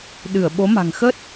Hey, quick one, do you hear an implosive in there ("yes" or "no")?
yes